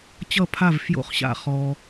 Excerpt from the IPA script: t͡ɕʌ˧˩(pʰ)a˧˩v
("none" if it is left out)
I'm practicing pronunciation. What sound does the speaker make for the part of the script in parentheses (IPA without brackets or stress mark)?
pʰ